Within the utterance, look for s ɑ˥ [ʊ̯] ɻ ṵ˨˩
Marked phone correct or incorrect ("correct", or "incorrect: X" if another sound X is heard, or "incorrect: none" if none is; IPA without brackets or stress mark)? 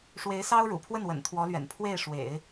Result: correct